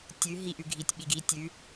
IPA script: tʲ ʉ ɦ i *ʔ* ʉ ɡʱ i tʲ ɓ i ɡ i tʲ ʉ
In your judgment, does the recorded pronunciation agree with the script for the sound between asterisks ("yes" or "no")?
yes